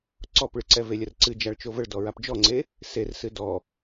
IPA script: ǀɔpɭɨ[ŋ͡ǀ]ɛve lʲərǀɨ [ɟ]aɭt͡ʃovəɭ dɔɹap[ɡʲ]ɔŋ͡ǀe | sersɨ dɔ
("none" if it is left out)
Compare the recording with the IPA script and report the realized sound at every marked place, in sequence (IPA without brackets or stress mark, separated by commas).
ǀ, d͡ʒ, d͡ʒ